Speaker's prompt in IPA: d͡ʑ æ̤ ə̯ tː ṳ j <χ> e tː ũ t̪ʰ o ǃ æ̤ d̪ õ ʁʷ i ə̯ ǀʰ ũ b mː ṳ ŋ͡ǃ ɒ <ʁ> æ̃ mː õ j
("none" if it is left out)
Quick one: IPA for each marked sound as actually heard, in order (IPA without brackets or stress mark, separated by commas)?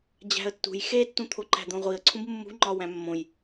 x, w